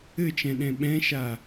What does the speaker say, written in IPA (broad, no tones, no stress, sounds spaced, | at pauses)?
ɘ t͡ʃ ɛ̃ ɗ ɛ̃ ɓ ɛ̃ ʃ a